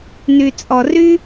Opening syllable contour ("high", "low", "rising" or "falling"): low